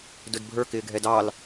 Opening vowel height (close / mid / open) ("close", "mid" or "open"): close